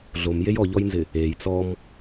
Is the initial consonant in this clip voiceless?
no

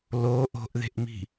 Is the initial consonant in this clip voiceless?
no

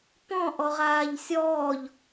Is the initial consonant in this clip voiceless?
yes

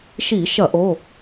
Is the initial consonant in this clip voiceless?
yes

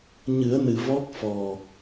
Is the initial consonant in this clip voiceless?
no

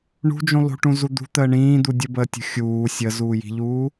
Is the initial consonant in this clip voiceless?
no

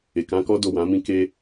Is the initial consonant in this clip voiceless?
yes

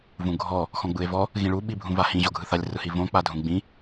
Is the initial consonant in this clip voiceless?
no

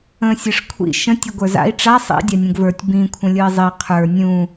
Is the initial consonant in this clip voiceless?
yes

